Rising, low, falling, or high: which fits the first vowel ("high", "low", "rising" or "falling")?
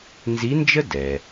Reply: rising